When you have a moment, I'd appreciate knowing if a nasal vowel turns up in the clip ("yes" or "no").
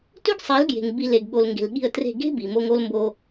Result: no